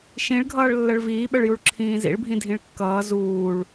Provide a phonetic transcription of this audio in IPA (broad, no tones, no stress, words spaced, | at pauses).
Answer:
ʃĩɭɡʱʌːɭ lːəɭviːɓəɭjuɭ ǁʰĩːzḭɭbʱĩ dʱĩɭkːʌː zuːɭ